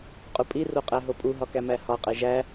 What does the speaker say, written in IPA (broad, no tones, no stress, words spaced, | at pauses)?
qʼupʼi roqʼæɦopʼu ɦɒkæmæhɒ qʼeʒæ